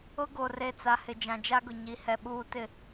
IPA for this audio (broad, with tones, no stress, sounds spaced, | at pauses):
ʊ˦ ɡ o˨ r e˨ t͡s a˨ h ɪ˨ d͡ʒ ã˨ d͡ʒ a˦ ɡ ʊ˨ ɲ i˨ h ɛ˨ ɓ uː˨ t ɪ˨